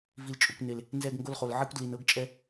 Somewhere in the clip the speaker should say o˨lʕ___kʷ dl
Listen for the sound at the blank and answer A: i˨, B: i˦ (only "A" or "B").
B